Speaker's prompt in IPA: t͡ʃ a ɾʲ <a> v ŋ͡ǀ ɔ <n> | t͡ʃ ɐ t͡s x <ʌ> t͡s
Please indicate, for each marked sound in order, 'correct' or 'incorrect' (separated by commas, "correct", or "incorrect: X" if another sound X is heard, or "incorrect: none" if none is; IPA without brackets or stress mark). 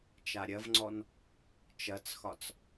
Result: incorrect: ɐ, correct, incorrect: ɒ